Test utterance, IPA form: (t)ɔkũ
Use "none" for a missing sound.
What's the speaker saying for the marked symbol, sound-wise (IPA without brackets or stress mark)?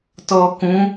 t